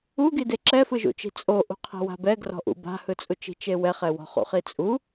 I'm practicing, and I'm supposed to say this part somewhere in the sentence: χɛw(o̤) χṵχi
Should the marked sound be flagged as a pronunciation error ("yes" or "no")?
yes